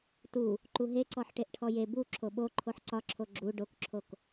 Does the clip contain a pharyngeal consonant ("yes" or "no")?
yes